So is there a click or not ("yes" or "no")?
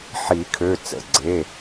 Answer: yes